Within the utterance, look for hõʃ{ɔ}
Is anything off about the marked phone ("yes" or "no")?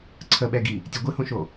yes